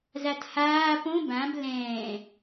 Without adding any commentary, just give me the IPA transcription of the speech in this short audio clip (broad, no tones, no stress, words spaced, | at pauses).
zathaː põ bãb lɛ̃ː